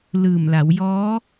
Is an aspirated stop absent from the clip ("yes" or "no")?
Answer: yes